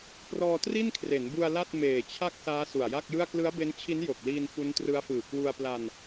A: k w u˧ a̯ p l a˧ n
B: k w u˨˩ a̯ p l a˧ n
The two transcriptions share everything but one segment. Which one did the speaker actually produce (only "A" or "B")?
A